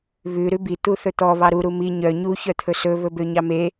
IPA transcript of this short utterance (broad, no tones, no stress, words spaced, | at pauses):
βʉ ɾʉbi t̪uθɵt̪ɔ βɑɾu ɾumi ɲœ ɲu çœt̪ʰɵsɵ βɵbøɲɑme